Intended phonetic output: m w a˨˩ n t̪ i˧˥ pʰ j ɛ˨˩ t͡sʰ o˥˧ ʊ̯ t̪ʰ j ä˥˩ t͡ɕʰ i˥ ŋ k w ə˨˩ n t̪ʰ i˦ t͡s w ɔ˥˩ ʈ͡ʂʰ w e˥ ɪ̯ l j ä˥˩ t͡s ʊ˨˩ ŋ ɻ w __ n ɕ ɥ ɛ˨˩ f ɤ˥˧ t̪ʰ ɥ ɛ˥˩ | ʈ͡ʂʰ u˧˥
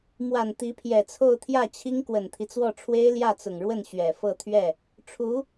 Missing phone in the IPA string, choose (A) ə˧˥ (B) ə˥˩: B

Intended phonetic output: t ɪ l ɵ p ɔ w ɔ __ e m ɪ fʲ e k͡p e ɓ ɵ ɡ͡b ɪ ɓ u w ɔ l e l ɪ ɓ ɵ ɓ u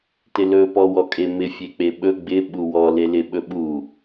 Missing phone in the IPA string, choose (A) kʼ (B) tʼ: A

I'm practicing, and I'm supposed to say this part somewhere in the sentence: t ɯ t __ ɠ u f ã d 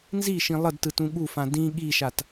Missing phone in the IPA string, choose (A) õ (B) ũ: B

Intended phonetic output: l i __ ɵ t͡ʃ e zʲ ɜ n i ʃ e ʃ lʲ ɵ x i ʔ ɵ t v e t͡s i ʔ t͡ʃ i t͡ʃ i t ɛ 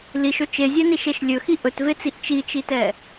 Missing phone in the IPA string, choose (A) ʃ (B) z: A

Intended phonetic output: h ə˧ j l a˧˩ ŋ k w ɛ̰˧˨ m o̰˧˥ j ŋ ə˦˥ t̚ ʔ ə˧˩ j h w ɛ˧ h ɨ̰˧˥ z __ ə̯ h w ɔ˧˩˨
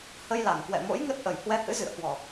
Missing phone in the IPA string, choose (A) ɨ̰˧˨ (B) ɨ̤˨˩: A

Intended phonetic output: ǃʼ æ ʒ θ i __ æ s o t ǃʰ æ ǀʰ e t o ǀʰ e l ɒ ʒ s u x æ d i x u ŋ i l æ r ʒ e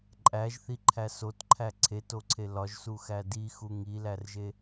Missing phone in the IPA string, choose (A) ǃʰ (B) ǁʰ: A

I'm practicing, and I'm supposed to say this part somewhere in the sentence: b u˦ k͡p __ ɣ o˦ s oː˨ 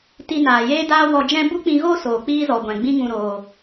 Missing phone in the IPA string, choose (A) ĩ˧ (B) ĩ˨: A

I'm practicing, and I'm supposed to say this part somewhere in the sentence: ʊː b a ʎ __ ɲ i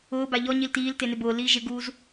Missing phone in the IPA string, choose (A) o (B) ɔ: B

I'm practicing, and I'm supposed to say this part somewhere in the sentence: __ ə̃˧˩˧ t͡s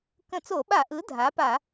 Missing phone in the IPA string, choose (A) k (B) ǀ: A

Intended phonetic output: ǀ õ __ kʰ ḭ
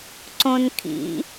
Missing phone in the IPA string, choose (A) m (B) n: B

